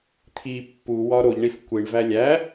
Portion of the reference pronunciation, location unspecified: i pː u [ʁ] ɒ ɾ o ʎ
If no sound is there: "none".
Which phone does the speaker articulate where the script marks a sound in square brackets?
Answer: w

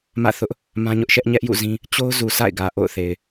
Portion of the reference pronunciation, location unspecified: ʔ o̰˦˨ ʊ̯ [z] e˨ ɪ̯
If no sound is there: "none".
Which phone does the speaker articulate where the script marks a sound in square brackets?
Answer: θ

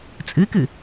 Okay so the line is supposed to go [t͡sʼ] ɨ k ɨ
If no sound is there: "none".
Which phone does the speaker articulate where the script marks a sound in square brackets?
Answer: t͡sʼ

